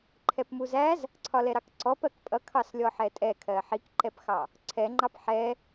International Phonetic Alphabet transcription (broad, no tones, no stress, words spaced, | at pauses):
ǃʰɛpmuzæz | ǀʰɒlɛɾɑkǀɔp ɜkpʼʌkʰɑslʲɔ ħɛtʼɛkʰɜ ħikǃɛpxɑ | ǀʰɛŋ͡ǃɑp ħɛ